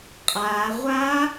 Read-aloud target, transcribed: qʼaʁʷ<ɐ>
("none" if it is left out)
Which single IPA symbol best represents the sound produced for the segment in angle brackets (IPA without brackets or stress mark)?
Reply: a